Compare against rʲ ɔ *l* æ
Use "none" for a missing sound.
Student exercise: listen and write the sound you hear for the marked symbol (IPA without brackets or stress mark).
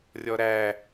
ɾ